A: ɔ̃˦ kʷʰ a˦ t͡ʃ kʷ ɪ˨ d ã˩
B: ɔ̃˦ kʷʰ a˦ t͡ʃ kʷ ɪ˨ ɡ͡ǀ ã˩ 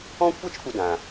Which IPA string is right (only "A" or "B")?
A